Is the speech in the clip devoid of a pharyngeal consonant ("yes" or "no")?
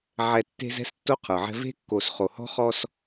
no